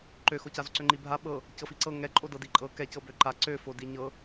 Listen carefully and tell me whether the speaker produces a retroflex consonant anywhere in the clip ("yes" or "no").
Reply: no